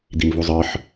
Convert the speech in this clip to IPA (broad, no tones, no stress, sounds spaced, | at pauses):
d̪ i m v u zˤ ə˞ ħ